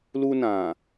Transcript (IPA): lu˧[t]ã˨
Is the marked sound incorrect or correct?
incorrect